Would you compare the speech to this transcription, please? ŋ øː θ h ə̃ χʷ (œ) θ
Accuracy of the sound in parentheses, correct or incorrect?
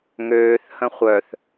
correct